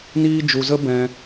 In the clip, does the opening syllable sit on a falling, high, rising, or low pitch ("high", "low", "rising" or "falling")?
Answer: high